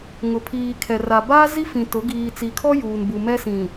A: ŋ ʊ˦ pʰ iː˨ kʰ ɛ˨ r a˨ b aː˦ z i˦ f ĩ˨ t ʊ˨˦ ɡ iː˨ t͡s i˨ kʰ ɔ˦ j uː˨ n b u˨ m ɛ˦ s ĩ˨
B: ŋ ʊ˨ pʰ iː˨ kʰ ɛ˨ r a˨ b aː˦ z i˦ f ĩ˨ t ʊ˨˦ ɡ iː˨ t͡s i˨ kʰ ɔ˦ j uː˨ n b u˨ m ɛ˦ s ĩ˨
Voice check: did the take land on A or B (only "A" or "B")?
B